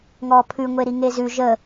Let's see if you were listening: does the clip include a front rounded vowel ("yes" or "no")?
no